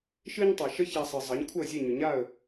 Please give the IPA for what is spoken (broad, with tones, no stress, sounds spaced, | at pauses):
ʃ ɨ˥ ɲ tˤ e˩ ʃ ə˥ ç a˧ sˤ ɨ˩ zˤ ə˩˥ ɲ kʷʰ ə˥˩ zʲ e˥˩ ɲ ʏ˩ ɲ a˥˩ ə̯